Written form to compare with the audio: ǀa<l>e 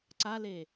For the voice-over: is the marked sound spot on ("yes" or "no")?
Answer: yes